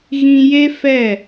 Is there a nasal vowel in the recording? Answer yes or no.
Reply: yes